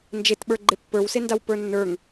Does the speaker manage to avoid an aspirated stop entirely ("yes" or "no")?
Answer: yes